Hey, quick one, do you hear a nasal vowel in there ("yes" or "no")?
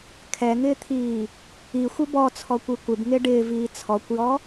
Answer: no